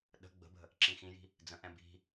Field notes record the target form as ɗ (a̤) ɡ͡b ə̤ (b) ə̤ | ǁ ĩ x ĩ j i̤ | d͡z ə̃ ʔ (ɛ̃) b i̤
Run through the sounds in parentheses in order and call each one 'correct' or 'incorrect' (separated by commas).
incorrect, correct, correct